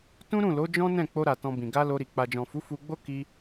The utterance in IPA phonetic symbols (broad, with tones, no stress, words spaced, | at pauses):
tũ˦ɾũ˦˨lo˨˦ d͡ʒɔ̃˦nɛ̃˦˨ k͡po˧ɾa˨ tɔ̃˧bĩ˨ ɡa˧ lo˧ɾi˨ k͡pa˨d͡ʒɔ̃˨fu˨˦ fu˧ɡ͡bo˦ ki˧